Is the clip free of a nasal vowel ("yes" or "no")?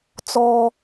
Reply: yes